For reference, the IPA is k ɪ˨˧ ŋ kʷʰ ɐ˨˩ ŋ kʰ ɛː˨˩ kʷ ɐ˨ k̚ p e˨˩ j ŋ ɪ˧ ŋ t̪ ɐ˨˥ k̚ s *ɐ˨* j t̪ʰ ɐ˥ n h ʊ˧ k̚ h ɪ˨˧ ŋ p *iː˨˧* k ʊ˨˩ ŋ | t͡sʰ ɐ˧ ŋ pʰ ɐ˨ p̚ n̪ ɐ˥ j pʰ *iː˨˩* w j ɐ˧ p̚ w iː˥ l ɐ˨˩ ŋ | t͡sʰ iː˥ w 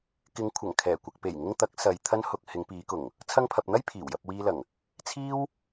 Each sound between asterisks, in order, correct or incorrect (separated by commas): correct, correct, correct